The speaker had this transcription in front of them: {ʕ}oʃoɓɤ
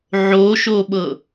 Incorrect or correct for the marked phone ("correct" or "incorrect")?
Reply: correct